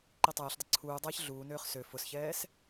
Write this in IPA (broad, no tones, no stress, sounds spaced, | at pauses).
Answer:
ǃ i tˤ ɛː ɬ dˤ ə ǀʰ uː dˤ ɛː ç ɮ uː n øː χ s ø f ʊ s ç ɛː s